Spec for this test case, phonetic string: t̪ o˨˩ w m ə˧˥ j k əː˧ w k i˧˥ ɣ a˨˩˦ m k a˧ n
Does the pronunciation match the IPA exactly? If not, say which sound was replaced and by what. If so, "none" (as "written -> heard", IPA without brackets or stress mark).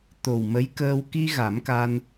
i˧˥ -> i˧